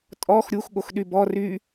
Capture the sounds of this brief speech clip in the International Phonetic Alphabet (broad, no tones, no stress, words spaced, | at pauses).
tʼɔx ɾʲux ɠoxɗybɔ ry